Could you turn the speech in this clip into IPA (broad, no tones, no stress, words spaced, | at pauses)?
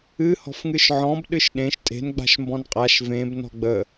ɨ hɔ̤fŋɨʃʕɔ̃b ɗɨʃɗẽʃ tʼe̤n ɡ͡ba̤ʃmbɔ̃nqʼaʃ vẽb nɔ̤ɡ͡bə